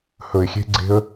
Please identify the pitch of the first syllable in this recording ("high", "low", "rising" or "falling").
low